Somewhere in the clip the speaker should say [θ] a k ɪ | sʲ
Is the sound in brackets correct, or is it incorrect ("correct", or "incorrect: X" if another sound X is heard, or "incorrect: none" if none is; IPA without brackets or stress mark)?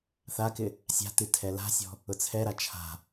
correct